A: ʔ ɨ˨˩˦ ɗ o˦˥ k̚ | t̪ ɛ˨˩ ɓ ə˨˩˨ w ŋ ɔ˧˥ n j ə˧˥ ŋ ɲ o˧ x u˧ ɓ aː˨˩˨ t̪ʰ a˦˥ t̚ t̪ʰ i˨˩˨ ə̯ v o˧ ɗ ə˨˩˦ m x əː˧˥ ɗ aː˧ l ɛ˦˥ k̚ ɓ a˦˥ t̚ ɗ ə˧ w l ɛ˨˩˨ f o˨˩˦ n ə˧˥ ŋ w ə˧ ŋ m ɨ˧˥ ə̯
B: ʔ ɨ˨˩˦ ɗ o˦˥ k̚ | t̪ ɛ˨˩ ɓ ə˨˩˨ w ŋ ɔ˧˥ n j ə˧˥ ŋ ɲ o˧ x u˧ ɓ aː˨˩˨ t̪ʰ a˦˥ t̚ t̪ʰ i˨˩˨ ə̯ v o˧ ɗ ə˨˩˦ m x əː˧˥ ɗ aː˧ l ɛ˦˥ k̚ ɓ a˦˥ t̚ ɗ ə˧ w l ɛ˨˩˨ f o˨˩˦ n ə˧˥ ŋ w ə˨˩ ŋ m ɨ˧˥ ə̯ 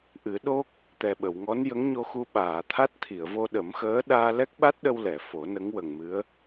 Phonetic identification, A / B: B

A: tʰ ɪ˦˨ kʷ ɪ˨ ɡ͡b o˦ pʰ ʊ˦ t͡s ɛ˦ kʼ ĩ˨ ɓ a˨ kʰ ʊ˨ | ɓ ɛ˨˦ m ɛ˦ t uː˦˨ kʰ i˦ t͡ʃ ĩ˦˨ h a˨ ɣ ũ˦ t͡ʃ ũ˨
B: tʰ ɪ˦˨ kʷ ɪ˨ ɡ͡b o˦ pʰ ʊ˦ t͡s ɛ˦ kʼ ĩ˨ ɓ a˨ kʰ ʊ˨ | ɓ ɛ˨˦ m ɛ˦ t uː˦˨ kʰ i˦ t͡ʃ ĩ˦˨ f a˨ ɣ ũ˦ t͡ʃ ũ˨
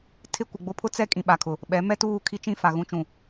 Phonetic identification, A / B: B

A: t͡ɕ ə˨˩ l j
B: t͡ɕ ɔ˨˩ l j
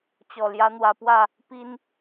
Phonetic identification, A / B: B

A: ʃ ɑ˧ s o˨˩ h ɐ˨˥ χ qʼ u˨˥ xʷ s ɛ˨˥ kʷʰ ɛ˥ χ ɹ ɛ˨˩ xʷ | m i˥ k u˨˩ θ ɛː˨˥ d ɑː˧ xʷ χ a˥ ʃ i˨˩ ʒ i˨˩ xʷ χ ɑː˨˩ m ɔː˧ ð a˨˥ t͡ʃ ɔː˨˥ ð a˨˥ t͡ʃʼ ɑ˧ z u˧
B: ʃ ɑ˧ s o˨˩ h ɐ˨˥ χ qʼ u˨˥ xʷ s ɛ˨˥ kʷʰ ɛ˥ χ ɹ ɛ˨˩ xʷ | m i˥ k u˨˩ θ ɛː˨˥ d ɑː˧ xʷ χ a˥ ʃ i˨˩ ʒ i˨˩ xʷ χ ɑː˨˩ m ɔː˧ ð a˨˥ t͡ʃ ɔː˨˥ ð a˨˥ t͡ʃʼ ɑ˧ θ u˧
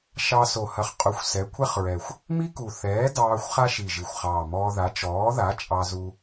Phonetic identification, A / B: A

